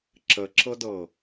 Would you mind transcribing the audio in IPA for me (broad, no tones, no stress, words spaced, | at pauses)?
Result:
ǁəǁɤdɤ